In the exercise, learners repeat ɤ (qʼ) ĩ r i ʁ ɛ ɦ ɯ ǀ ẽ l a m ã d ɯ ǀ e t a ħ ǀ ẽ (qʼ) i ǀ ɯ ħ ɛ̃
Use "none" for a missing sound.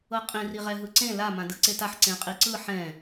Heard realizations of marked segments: qʼ, qʼ

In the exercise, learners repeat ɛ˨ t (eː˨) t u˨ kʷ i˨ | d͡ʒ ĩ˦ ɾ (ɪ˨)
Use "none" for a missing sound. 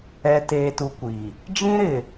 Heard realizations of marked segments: eː˨, ɪ˨

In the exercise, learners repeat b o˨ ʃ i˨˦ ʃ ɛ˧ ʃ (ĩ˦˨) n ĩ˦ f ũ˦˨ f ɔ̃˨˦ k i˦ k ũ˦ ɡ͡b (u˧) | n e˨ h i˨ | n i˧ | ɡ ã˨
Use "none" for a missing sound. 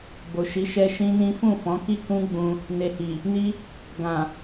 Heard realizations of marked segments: ĩ˦, ũ˧

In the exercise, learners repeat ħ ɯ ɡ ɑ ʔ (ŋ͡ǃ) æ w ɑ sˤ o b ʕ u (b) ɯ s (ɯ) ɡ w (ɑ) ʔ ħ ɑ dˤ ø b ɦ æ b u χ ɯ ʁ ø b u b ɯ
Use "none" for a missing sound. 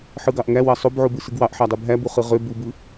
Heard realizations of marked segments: ŋ, b, ɯ, ɑ

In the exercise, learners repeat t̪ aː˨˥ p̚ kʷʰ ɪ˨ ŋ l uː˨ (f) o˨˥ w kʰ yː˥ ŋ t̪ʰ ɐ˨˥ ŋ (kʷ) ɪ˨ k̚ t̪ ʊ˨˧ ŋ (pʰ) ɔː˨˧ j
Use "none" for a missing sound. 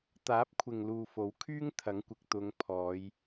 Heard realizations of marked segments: f, kʷ, pʰ

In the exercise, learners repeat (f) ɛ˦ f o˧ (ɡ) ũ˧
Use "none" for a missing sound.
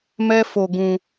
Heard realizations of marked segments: m, ɡ

